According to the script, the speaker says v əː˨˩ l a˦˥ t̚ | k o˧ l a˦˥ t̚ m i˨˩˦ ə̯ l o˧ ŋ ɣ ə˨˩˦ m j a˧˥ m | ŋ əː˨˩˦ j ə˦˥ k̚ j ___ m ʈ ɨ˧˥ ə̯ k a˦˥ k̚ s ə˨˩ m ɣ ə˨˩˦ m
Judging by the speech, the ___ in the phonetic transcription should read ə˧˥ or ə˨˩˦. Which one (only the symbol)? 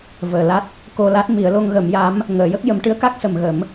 ə˨˩˦